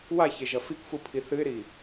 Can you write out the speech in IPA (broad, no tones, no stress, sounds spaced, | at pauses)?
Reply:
w a ç e ʒ ɐ f i k f u pʰ i θ ɨ ɪ̯ ɾ i